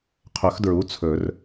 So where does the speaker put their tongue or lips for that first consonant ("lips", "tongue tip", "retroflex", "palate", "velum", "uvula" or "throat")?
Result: uvula